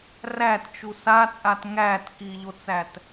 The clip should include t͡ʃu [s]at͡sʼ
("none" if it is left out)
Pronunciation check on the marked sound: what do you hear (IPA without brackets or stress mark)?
s